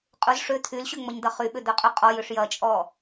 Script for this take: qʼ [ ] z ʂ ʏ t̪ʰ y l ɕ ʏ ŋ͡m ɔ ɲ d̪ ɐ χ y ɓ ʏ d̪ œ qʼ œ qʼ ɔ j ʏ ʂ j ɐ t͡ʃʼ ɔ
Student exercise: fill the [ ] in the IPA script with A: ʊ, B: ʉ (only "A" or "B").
A